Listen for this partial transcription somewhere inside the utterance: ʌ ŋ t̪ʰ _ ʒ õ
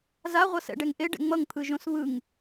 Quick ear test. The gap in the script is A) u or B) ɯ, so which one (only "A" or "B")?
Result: B